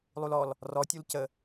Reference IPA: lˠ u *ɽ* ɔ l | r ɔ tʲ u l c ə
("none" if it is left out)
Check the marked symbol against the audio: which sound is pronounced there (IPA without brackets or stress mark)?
l